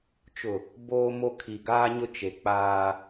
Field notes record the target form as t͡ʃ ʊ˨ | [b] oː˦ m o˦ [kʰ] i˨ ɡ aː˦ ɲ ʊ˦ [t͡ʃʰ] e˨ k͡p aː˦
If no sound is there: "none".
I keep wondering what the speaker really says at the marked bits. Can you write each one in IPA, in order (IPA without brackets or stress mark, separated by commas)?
b, kʰ, t͡ʃ